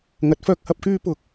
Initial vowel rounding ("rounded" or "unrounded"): unrounded